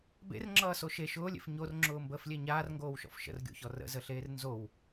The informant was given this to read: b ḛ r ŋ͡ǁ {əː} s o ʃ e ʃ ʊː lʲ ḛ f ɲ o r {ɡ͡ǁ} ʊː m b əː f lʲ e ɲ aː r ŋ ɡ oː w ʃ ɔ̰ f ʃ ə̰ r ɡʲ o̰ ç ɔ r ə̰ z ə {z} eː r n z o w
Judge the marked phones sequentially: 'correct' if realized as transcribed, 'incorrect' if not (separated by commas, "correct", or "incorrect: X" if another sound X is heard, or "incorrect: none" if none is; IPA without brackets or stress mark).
incorrect: ʌː, incorrect: ŋ͡ǁ, incorrect: ɬ